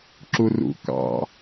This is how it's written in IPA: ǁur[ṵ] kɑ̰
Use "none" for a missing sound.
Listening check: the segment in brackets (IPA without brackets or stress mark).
ṵ